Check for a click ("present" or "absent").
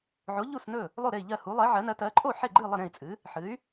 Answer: present